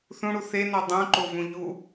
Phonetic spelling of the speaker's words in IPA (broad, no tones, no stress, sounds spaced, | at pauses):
θ ũ ɽ u θ e n ɑ dˤ ũ ǃ o v ũ ʎ u